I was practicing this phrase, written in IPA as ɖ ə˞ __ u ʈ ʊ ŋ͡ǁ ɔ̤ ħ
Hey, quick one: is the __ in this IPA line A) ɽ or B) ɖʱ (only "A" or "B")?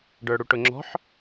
A